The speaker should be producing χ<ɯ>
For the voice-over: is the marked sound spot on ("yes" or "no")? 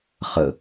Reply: no